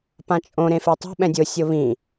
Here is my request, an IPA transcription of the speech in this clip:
p ã t͡ʃʼ õ ɾ ẽ f e tˤ o̤ ɓ ɛ̃ dʲ ʊ sʲ ʊ β ĩ

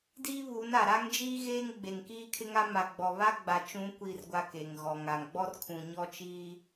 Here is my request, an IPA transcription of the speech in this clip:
d iː˦ β uː˨˦ n a˨ ɾ a˦ ŋ d͡ʒ iː˦ ɣ eː˦ ŋ ɡ͡b e˨ ŋ k iː˦ kʰ ɪ˦ ŋ a˦ m a˨ ɡ͡b ɔ˨ β a˦ ɡ͡b a˨ t͡ʃ ũ˨˦ kʷ iː˨ r ɡʷ a˨ k e˨ ŋ ɣ ɔ˨ ŋ a˨ ŋ ɡ͡b ɔ˦ r kʰ ũ˨ ɲ ɔ˦ t͡ʃ i˦

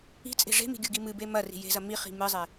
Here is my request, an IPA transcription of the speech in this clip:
i̤ t͡sʼ e̤ ʐ e̤ m i̤ ɡʲ u ɡ i m ɨ b e m ɐ r i̤ j e̤ z ɐ m i χ i̤ m ɨ zˤ e

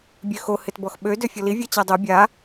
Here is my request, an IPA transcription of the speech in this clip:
bʲ ø x o h ɪ t b ɔ x ɓ ø d ø fʲ ɔ l i vʲ a t͡ɕ a dˤ o bʲ a

